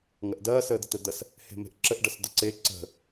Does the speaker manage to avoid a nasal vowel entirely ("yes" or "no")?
yes